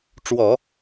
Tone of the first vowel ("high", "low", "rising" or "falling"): low